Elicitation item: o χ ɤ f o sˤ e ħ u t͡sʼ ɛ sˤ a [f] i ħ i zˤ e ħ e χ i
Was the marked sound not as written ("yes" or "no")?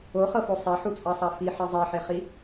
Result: no